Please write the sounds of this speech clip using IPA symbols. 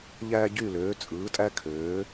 ʎ æː˧ ɟ yː˧˩ l øː˩˧ t͡sʼ ɯː˩˧ tʼ æ˧ kʰ øː˩˧

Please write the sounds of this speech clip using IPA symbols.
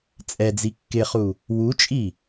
t͡sʼ ɛ d͡z i kː ɪ χ u | w u t͡ʃʼ i

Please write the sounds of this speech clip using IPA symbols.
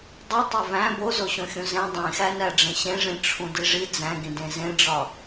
dˤ u tˤ e v æ̃ b o z o ɕ õ xʲ ũ z ẽ dˤ ĩ x æ n æ ɖ͡ʐ ẽ ɕ ẽ ʐ ĩ ʈ͡ʂʰ ũ d i ʐ i d͡z æ̃ ɡ ĩ d ẽ z ẽ ɖ͡ʐ ɒ

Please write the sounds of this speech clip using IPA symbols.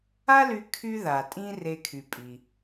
a˥ l y˧ kʰ y˧ ð a˩ tʼ ĩ˧ r e˧ kʰ y˩ pʼ i˩

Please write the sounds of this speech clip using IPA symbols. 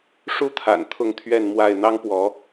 ʂ u˦ t̪ʰ a̰˨˩ n t̪ʰ ʊ˥˨ ŋ t̪ʰ ɥ ɛ˥˨ n m w a˥˨ ɪ̯ n̪ ɑ˦ ŋ p w ɔ˨˦

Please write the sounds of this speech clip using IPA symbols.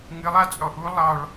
ŋ ɨ lˠ a t͡sʼ ɔ ʔ u lˠ ɑ ɭ

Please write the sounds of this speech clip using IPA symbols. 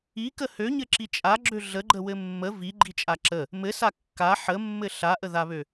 i k ə h ø ɲ ɘ ǁ i t͡ʃʼ a ɡ͡ǁ ø ɮ ə ɡ͡ǃ ə w ɘ mː ə v i ɡ͡ǃ i t͡ʃʼ a ǁ ə | m ɘ s a kː a ħ ə mː ɘ ɬ a ʔ ə ð a β ø

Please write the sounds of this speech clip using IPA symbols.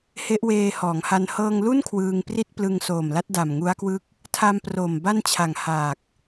h e˦˥ ʔ w eː˧ h ɔː˩˦ ŋ h a˧ n h ɤː˧ ŋ l u˥˩ n kʰ w ɯː˧ ŋ p r i˥˩ t̚ p l ɯ˧ ŋ s oː˨˩ m l a˦˥ t̚ d a˨˩ m ŋ u˦˥ a̯ k w ɯ˦˥ k̚ | tʰ a˧ m p r oː˨˩ m b a˥˩ n t͡ɕʰ a˨˩ ŋ h aː˨˩ k̚

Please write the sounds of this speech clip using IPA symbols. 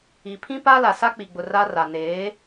i˨ pʰ ĩ˦ p a˦ l a˨ s a˦ k͡p i˨ ɡ͡b ʊ˨ r a˦ r a˨ n eː˨˦

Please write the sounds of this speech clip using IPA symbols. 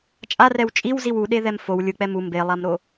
t͡ʃʼ a r ɛ w t͡ʃʼ i w z i w u ɗ e ð ɛ m f o w lʲ ɯ k͡p ɛ m u m b e lˠ a m ɾ o

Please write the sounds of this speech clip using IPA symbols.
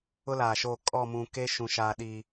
ʊ˦ l aː˨ ʃ oː˦˨ kʼ ɔ˦˨ m ũ˨ k e˦ ʃ ũ˨ ʃ aː˨ ɗ i˨

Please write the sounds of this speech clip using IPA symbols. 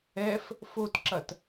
ɛ f | f o t ǁ ɐ t

